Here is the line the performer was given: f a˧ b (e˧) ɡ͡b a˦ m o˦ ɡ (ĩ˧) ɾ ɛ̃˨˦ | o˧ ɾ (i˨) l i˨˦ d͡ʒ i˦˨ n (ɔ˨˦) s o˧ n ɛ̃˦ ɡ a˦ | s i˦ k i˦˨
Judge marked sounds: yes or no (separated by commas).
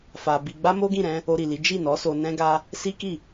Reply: no, no, yes, yes